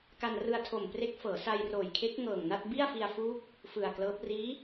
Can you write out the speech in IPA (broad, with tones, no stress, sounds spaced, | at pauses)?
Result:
k a˧ n r ɯ˧ a̯ tʰ o˨˩ m p r e˦˥ k̚ f ɤː˩˦ s a˧ j r oː˨˩ j kʰ e˦˥ k̚ ŋ ɤː˨˩ ŋ n a˥˩ t̚ b i˥˩ a̯ f i˧ a̯ f uː˦˥ k̚ | f ɯ˨˩ a̯ k l ɤː˦˥ p̚ r iː˦˥